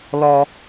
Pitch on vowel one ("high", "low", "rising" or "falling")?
low